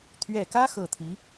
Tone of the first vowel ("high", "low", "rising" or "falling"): low